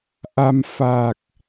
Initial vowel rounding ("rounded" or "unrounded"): unrounded